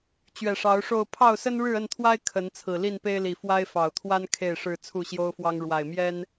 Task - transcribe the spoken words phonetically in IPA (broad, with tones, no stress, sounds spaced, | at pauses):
t͡ɕ ɥ ɛ˨˩ ʂ ɑ˨˦ ʊ̯ ʂ o˥˨ ʊ̯ pʰ ɑ˥˨ ʊ̯ s ə˦ n ɻ ɻ̩˥˨ ə˥˨ n t̪ʰ w a˦ ɪ̯ kʰ ə˨˦ n t͡sʰ ɹ̩˨˩ l i˥˨ n p e˦ ɪ̯ l i˨˩ f w a˦ ɪ̯ f ɑ˨˩ ʊ̯ t̪ʰ w a˦ n kʰ e˥˨ ɪ̯ ʂ ɻ̩˥˨ t͡sʰ u˥˨ ɕ j o˦ ʊ̯ f w ɑ˦ ŋ ɻ w a˨˩ ɪ̯ m j ɛ˦ n